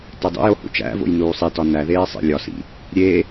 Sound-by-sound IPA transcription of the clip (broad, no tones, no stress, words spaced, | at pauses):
tedˤḛjo hṵt͡ʃæ̰vo̰j nuːsˤitɒ næðeː sˤḛlʲɒsḭ | ɾʲe